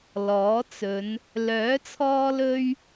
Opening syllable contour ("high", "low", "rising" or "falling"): rising